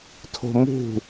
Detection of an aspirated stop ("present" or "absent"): present